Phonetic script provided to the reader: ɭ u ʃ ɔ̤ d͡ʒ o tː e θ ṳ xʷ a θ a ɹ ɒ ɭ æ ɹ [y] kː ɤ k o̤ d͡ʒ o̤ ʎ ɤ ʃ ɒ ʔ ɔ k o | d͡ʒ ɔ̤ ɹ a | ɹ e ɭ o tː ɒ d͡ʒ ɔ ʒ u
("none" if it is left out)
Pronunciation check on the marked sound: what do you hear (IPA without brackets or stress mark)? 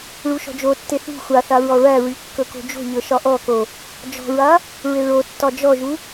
y